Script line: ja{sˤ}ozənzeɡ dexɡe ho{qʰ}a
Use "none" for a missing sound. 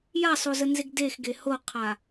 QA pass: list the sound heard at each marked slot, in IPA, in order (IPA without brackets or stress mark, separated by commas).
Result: sˤ, qʰ